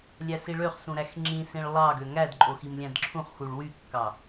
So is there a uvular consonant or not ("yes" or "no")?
yes